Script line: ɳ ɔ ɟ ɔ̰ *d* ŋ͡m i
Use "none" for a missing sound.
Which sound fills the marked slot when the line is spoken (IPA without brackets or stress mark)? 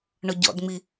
d